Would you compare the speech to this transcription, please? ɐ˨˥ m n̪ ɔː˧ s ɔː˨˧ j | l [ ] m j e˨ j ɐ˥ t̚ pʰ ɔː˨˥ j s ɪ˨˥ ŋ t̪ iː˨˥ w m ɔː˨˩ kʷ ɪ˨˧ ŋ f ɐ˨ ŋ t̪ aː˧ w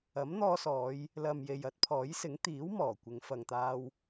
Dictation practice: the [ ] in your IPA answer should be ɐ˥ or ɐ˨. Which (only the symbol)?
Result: ɐ˨